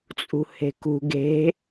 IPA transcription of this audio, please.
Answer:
t͡sʼ ṳ h e̤ k ṳ ɡ e̤

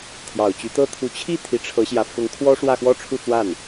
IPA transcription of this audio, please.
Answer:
t̪ʰ j ɑ˨˩ ʊ̯ t͡ɕ y˧˥ t̪ ɤ˥ t̪ʰ u˧˥ t͡ɕʰ i˥˩ t̪ʰ i˧˥ ʈ͡ʂʰ ɤ˧˥ ɕ j ä˧˥ f ʊ˧˥ ŋ kʰ w ɔ˥ ʂ w ä˥˧ x w ɔ˥˧ ʈ͡ʂʰ u˥˧ t͡s w a˥˩ n

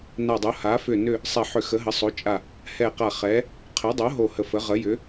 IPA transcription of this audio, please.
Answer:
n a˨˩ dˤ o˩˧ h a˩˧ f ʏ˨˩ n ʏ˨˩ | sˤ ɛ˨˩ ħ ʏ˨˩ x ə˩˧ ɦ ə˩˧ sˤ o˩˧ t͡ʃʼ a˨˩ | h ɛ˨˩ q a˨˩ χ ɛ˩˧ | qʰ ɛ˩˧ dˤ o˩˧ ɦ o˨˩ h ə˨˩ f ə˩˧ ʁ ə˩˧ j ʏ˩˧

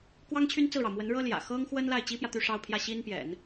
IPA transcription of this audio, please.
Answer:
k w ɑ˥ ŋ t͡ɕʰ y˥ n t͡s ɹ̩˥˩ ɻ ɑ˩ ʊ̯ m w ə˧˥ n ɻ ɤ˥ l j ä̰˨˩ x ɤ˥ ŋ x w ə˥ n l a˥˩ ɪ̯ t͡ɕ i˥ p j ä˨ t̪ y˥˧ ʂ ɑ˥˧ ʊ̯ pʰ j ä˥˩ ɕ i˥ n p j ɛ̰˨˩˦ n

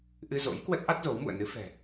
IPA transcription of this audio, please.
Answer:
ʔ ɨ˧ z o̰˧˥ j k w ə˦˥ t̚ ʔ a˦˥ t̚ z o˨˦ w m ṵ˧˨ ə̯ n ɨ˨˦ f ɛ̤˨˩

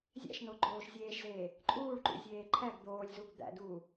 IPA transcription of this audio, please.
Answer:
zʲ æ̰ ʃ n o ɡ͡ǃ oː ʃ zʲ eː ʃ z eː | ǃʼ uː ɭ ǃ ṵ zʲ eː ǃʰ æ ɡ d̪ oː lʲ z u ɡ d̪ æ̰ d uː

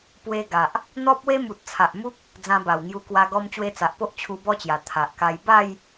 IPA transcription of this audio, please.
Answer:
p w e˧ ɡ a˨ ʔ | n̪ ɔ˦ p̚ w e˦ m u˨ t̚ t͡sʰ a˨ ʔ m u˦ k̚ | d͡z ã˧ b a˨˩ w ŋ j u˧ k w a˧ ɡ ɔ˧ m t͡ɕ w e˧ t͡s a˨ ʔ p o˦ ʔ t͡ɕʰ u˧ b ɔ˦ t͡ɕ j a˨˩ t̪ʰ a˨ ʔ k a˧ j b a˥˧ j

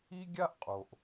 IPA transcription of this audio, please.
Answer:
i˥ ɡʲ a˥ ʔ qʼ o˨ ʔ

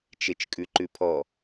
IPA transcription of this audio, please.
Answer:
t͡ʃ e t͡ʃ kʼ ʉ ǃ ʉ pʰ ɔ

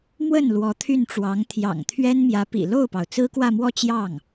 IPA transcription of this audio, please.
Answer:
m w ə˥˩ n l w ɔ˧˥ t̪ʰ y˥˩ n ʈ͡ʂ w ɑ˧˥ ŋ t̪ʰ j ɑ̰˨˩ ŋ t̪ʰ ɥ ɛ˥ n m j ä˧˥ p ḭ˨˩ l o˥˩ ʊ̯ p ɑ˩ ʊ̯ t͡s ɹ̩˥ k w ä˥˧ m w ɔ˥˧ t͡ɕ j ɑ˥˩ ŋ

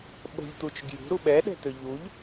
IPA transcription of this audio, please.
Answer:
ɓ ə̤ ʎ t̪ u t͡ʃ ɡ j ṳ ɾ u ɓ ɛ ɗ ɛ̤ t̪ ø ʎ u ʎ

